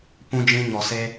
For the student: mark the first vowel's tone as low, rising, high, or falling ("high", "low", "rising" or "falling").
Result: high